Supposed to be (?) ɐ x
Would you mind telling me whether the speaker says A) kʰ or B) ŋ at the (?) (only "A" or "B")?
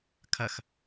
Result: A